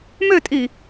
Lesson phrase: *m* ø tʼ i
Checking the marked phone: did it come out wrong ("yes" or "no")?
no